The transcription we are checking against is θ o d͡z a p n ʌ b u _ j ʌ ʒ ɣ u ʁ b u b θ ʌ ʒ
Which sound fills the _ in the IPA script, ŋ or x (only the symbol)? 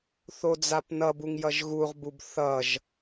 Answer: ŋ